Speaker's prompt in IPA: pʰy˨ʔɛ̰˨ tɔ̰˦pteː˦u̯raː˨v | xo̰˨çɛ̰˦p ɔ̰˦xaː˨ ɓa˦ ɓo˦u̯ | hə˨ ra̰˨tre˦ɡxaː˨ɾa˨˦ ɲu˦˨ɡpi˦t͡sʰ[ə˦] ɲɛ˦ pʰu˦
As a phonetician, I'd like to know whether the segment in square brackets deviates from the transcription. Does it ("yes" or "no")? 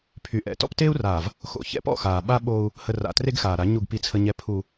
no